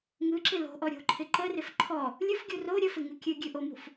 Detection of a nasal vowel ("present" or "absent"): absent